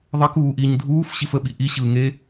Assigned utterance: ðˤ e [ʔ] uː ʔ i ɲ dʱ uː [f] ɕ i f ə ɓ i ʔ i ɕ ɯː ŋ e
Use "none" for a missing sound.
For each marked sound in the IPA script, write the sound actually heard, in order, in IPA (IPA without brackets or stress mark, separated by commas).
k, f